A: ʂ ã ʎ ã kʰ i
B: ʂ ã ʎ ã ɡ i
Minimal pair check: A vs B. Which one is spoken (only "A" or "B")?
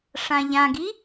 B